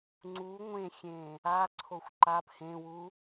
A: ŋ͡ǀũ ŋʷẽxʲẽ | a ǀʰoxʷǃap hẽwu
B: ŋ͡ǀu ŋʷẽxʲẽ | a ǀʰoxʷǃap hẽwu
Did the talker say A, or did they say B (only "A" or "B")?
B